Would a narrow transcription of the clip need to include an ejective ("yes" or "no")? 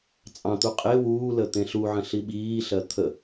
yes